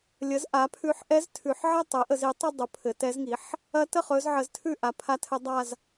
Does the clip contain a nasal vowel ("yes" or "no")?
no